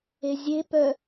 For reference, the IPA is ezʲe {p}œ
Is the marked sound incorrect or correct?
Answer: correct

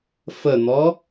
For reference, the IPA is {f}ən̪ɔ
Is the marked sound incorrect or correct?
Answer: correct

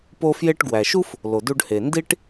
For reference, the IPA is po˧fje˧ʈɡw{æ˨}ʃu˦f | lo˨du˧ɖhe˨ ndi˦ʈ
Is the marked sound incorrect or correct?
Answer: correct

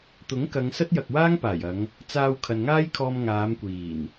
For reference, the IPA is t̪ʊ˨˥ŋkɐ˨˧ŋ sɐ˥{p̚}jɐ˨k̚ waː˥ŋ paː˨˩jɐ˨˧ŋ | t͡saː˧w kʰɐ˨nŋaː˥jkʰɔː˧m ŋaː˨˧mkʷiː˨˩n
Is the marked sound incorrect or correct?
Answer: incorrect: t̚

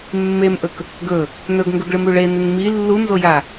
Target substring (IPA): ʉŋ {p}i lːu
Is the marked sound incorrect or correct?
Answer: incorrect: m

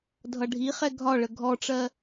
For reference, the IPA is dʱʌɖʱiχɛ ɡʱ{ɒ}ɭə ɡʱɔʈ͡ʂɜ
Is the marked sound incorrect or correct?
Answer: correct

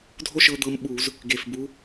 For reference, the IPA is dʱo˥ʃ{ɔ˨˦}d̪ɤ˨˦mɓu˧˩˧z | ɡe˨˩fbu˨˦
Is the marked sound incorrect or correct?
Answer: incorrect: ɤ˨˦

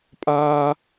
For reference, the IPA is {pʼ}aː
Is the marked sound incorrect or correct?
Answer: correct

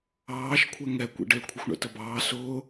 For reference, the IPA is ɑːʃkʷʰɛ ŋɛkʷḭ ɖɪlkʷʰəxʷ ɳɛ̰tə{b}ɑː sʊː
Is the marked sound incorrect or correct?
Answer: correct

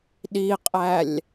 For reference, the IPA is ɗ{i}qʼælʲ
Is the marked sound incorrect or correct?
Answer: correct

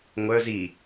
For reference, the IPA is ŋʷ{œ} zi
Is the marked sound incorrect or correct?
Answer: correct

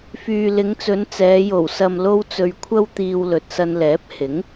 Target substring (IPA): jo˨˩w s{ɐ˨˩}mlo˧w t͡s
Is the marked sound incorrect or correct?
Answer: incorrect: ɐ˨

